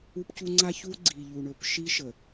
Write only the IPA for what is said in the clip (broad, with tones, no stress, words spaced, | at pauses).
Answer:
u˦pcu˦ ŋ͡ǀa˦çu˦ ɡ͡ǀi˨ʎu˨ ɳɵ˨pʃi˦ʃə˨